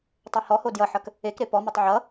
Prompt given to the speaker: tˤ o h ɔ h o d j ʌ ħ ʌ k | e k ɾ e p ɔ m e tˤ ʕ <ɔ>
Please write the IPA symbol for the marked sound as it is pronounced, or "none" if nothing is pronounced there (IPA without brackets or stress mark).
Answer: ʌ